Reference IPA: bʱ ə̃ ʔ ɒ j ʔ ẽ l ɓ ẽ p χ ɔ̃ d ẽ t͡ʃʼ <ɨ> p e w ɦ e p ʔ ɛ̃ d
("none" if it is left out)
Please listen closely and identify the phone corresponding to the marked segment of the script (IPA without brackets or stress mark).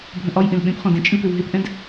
ɨ